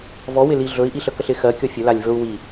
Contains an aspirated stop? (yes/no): no